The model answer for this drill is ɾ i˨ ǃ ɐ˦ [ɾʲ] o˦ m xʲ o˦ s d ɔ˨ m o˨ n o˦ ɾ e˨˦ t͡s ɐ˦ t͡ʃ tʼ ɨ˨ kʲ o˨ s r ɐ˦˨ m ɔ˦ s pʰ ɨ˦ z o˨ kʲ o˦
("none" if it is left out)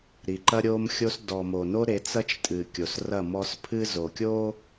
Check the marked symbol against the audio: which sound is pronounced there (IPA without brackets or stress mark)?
ɾʲ